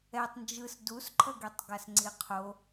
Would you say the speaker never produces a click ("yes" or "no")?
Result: no